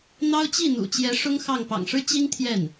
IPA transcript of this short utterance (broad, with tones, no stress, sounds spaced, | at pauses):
n̪ ɑ˥ ʊ̯ t͡ɕ i˥˩ n̪ ṵ˨˩ t͡ɕ j ɛ˧˥ ʂ ʊ˥ ŋ x ɑ˥˩ ŋ p ɑ̰˨˩ ŋ ʂ ɻ̩˥ t͡ɕ i˥ ŋ t̪ʰ j ɛ˥˩ n